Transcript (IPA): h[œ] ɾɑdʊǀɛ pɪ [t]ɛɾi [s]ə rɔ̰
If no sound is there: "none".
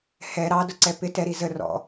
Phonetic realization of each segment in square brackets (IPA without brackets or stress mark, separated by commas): ɛ, t, z